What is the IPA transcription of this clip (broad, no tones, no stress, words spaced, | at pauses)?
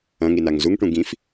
ɐ̃ŋinaŋ zuŋʈũ ɡĩf